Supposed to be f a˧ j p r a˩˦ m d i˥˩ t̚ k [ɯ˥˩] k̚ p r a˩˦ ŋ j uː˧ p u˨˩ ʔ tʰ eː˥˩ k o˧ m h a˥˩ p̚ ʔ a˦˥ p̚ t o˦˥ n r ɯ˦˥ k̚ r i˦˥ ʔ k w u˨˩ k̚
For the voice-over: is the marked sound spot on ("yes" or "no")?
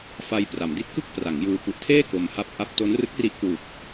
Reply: yes